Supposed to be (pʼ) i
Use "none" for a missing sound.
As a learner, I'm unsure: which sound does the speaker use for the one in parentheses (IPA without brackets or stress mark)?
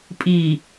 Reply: pʼ